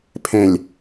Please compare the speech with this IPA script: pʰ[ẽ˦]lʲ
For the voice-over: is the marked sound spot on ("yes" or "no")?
no